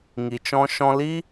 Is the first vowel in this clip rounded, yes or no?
no